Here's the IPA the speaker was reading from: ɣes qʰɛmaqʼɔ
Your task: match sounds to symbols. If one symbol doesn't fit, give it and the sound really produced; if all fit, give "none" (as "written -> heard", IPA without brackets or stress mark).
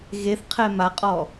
s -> θ